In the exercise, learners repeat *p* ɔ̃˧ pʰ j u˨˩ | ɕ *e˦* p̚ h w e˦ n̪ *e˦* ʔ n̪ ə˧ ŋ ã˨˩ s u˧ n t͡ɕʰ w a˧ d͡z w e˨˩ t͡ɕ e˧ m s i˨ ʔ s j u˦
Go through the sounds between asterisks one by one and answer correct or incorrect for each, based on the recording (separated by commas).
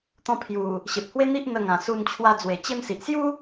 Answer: incorrect, incorrect, incorrect